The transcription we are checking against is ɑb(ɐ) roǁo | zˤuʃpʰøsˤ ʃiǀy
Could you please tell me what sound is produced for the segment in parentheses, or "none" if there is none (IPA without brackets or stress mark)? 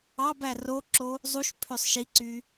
æ